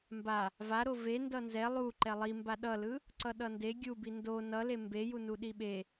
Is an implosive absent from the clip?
no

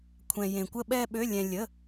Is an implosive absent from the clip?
no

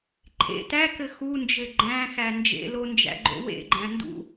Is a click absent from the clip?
no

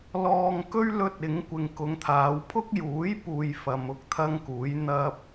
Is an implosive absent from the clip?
yes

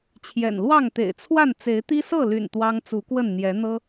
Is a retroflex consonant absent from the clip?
yes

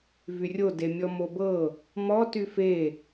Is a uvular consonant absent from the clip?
yes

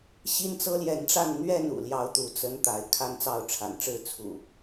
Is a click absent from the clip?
yes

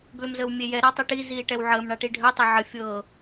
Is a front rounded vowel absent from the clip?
no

